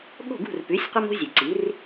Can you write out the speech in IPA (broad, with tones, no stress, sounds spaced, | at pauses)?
ɠ o̤˥˩ ɡ ṳ˥˩ r p ʉ˩˥ sʲ qʷ ɐ˥ m o̤˥ zʲ ɵ˩ ǀ i˩˥ r